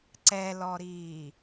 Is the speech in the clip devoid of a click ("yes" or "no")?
no